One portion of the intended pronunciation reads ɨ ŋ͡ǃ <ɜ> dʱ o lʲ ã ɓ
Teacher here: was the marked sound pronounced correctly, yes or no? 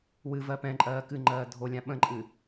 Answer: no